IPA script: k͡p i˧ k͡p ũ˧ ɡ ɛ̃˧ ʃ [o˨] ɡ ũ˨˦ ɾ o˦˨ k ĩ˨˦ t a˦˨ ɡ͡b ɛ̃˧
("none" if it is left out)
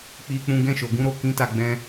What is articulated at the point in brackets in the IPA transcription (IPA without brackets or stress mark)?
o˨